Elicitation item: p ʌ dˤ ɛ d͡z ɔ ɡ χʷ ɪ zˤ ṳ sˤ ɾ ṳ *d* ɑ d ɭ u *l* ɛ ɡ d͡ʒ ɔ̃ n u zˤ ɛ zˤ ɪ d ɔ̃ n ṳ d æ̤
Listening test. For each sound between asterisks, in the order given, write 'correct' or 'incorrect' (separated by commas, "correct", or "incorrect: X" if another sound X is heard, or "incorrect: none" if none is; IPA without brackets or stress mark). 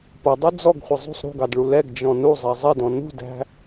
incorrect: ɡ, correct